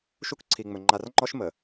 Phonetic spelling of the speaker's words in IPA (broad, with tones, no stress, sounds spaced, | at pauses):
ʃ u˦ k ǀʰ i˨ ŋ͡m ɵ˨ ŋ͡ǃ a˨ r ŋ͡ǃ ɔ˦ ʃ m ə˨